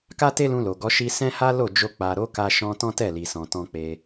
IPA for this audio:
k a˦ t e˦ l ũ˧ l o˨ ɡ ɔ˨˦ ʃ i˦ s ɛ̃˦ h a˦ l o˦˨ d͡ʒ o˧ k͡p a˨ ɾ o˨˦ k a˧ ʃ ɔ̃˧ t ɔ̃˦ t ɛ˦˨ l i˨ s ɔ̃˨ t ɔ̃˧ k͡p e˧

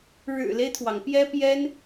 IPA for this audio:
ɻ ɻ̩˨˩ l e˦ ɪ̯ t̪ʰ w ɑ˩ ŋ p j ɛ˥ p j ɛ˥ n

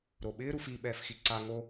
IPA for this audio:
ɾ o ɓ ɪː ɾ u f i ɓ ɛː f x i ǀ a ŋ o

